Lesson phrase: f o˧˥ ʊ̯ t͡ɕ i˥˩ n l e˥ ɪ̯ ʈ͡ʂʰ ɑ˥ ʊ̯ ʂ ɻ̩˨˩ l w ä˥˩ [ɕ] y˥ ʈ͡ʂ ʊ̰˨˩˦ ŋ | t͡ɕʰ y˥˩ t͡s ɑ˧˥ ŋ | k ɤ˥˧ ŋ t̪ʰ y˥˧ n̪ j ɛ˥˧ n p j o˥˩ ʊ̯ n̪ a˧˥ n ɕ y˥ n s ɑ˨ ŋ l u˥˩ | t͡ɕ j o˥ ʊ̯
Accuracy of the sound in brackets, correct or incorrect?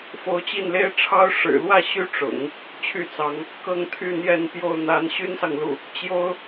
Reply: correct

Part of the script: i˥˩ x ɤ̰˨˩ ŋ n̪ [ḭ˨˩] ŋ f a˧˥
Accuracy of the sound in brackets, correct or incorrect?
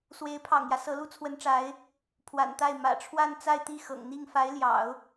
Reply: incorrect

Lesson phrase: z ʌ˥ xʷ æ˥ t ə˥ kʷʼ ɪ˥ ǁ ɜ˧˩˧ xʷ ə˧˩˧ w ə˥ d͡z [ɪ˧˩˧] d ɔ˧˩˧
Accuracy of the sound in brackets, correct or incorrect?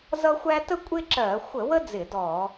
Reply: correct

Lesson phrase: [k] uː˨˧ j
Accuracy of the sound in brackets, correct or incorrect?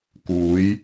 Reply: correct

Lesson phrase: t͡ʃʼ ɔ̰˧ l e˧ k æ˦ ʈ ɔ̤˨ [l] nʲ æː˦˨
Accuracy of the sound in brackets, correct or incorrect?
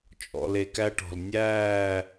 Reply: correct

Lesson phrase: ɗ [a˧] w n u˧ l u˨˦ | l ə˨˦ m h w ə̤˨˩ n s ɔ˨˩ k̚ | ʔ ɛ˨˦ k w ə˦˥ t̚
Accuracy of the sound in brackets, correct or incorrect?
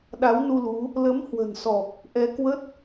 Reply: incorrect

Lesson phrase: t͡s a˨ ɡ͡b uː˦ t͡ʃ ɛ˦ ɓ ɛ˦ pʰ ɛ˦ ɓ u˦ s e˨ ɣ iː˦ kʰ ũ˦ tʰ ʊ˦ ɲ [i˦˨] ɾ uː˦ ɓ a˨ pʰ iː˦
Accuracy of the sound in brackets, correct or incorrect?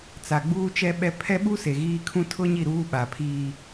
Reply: correct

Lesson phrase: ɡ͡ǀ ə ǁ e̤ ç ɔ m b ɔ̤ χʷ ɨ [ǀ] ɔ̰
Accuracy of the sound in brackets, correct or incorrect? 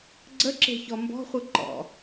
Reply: incorrect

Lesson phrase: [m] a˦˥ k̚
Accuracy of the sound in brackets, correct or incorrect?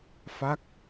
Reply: incorrect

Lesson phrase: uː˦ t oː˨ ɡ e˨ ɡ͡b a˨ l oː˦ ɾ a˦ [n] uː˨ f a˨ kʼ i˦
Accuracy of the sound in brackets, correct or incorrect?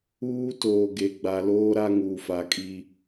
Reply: incorrect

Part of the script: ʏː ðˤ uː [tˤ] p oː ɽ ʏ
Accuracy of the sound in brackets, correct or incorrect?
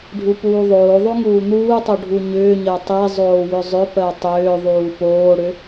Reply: incorrect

